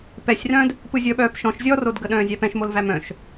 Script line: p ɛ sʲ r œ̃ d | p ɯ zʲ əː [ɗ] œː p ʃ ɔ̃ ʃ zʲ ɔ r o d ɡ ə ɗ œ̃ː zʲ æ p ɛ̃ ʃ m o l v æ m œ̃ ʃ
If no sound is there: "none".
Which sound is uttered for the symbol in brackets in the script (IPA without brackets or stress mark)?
ɓ